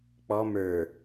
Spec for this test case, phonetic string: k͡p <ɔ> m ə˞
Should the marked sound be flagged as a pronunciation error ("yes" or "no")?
no